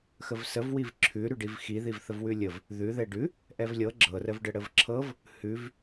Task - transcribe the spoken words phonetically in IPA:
x ə v s ə v w i v ǁʰ ʉ ɾ ʉ ɖ i v x i ð i v θ ə v w ʉ lʲ ə v | ð ʉ ð ɛ ɖ ʉ | ʔ ɛ v lʲ ɤ ɡ͡ǁ ɤ r ə v ɖ ə ɽ ə v ǁʰ ɤ v | h ʉ v

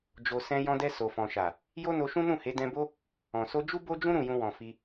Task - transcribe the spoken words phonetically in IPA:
d͡ʒ o˧ s ɛ̃˧ j ɔ̃˧ d ɛ˧ s o˨ f ɔ̃˨ ʃ a˨ | j o˦ n o˧ ʃ ũ˦ n ũ˦˨ h e˨˦ d ɛ̃˧ b o˦ | ɔ̃˨ s o˧ d͡ʒ u˦ b o˦ d͡ʒ ũ˦ ɾ ũ˦˨ j ũ˧ w ɔ̃˨ f i˧

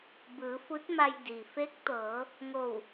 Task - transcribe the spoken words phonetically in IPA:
b ɯː˩˧ f u˧˥ t̚ m a˧ j d iː˩ f e˧˥ k̚ t̪ ɤː˩˧ | ŋ o˧˩ w

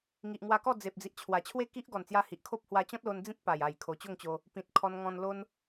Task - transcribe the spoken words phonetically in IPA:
ŋ i˨ ʔ ŋ w a˧ k ɔ˥˧ d͡z e˨ p̚ d͡z i˨ ʔ t͡ɕʰ w a˨˩ t͡ɕʰ w e˥˧ k i˦ ʔ ɡ ɔ˨˩ n t͡s j a˧ h i˨ ʔ kʰ o˦ p̚ h w a˧ t͡ɕ ɔ̃˦ t̚ l o˧ n d͡z ĩ˦ t̚ p a˨˩ j a˨˩ j kʰ o˨˩ t͡ɕ o˥˧ ŋ t͡ɕ o˧ | p ĩ˨ t̚ kʰ ɔ˧ n ŋ ɔ̃˧ n l o˦ n

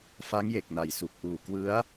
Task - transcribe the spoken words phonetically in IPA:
f a˦˥ ŋ j e˨˩ k̚ n a˨˩ j s u˨˩ k̚ ʔ uː˨˩ k w ɯ˦˥ a̯

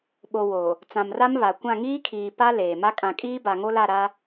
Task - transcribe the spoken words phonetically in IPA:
ɓ o˨ w o˨ | t͡s ã˨ m r a˦ m β a˨ kʷ ã˦˨ ŋ iː˦ kʰ iː˨ p a˦ l eː˨ m a˦ kʼ ã˨ kʼ iː˦ b a˨ ŋ o˦ l a˦˨ ɾ a˦

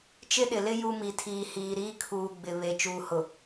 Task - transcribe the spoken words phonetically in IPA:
t͡ʃ ɪ˦ ɗ ɪ˨ l ɪ˦ j u˦ m i˨ tʰ iː˨ h iː˨ ɾ iː˦ kʰ uː˨ ɡ͡b ɪ˨ β e˨ t͡ʃ uː˨ h ʊ˨

